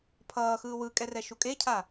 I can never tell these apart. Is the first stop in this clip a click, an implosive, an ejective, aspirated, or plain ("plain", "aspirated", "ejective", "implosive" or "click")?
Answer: aspirated